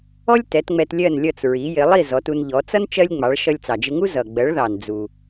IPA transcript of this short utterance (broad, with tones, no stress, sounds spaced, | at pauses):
ɔ˥ lʲ t ɛ˩˥ t ŋ͡m ɛ˧ t lʲ ɜ˥˩ n lʲ ʌ˥˩ t͡s ɹ i˩˥ j ɪ˩˥ lˠ i˥˩ z ɔ˩˥ t u˧ n ʎ ɔ˩˥ t͡s ʌ˥ n t͡ʃ ɜ˥ lʲ ŋ͡m ɑ˩˥ ɭ ʃ ʌ˧ lʲ t͡s ɑ˩ d͡ʒ ɪ˧ ŋ u˥ z ʌ˩ ɡ͡b ɜ˩˥ ɭ ð ɑ˩ n d͡z u˩